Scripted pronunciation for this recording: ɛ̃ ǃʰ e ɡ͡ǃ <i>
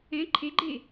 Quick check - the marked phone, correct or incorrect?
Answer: incorrect: e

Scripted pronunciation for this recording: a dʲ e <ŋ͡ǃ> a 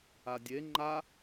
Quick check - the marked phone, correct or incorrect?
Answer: correct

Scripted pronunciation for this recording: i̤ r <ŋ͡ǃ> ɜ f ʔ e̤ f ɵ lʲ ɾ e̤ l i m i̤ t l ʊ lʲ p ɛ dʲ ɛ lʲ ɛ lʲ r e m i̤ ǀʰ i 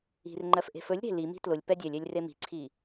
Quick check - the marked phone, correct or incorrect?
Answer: correct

